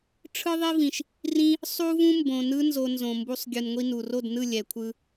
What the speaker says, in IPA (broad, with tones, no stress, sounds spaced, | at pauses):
ʈ͡ʂʰ ɯ˦ ðˤ i˦ v ĩ˨ ʃ | r ĩ˦ | sˤ u˦ v ũ˦ m b õ˨ n ɯ˦ n z o˧ n z õ˨ m b u˧ sˤ ɡʲ ɯ˨ n ŋʷ i˧ n u˨ r o˦˨ d n ɯ˦˨ lʲ ɛ˨ kʷʰ ɯ˧